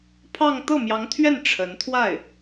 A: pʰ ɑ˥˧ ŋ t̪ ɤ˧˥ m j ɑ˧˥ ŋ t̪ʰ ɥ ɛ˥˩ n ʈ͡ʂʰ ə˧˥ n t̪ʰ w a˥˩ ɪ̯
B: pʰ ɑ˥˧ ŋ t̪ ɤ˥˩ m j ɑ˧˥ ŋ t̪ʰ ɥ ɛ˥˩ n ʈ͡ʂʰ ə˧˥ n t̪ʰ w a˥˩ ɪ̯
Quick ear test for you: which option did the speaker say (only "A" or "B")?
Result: B